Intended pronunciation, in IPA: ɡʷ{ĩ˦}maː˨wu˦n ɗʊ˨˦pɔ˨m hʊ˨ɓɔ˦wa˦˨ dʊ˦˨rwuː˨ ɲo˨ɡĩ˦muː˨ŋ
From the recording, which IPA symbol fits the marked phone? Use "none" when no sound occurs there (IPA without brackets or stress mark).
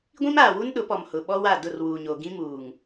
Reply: ĩ˦